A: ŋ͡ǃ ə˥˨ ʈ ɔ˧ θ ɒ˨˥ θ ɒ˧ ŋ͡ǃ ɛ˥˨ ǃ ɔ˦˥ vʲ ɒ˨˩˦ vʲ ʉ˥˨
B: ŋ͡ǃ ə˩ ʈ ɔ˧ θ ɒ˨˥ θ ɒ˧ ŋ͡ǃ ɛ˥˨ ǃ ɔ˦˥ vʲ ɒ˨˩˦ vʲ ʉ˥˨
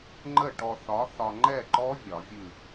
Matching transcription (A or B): A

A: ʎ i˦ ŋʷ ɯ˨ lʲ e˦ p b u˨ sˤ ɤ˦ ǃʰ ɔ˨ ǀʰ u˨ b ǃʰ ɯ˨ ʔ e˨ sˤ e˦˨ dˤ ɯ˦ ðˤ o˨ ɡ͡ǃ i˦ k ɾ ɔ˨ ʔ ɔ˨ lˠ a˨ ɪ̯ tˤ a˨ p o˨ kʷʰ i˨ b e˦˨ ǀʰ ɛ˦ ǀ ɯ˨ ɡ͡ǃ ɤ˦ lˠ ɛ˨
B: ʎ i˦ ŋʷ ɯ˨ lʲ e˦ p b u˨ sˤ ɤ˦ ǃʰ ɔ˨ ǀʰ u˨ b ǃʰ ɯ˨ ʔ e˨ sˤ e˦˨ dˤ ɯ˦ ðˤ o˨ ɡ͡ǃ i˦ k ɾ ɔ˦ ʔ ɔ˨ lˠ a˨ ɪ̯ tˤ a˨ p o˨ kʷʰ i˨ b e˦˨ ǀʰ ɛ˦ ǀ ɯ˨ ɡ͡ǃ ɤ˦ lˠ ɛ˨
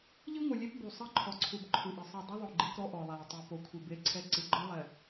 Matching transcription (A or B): B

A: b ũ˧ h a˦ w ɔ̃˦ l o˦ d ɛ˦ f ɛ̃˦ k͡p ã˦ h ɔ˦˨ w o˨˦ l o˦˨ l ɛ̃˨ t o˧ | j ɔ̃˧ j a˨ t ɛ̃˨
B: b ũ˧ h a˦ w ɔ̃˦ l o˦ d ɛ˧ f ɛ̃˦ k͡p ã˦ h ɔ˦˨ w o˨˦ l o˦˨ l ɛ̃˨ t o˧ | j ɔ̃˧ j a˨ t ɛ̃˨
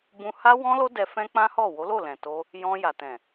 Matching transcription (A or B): B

